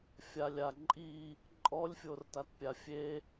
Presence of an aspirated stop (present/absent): absent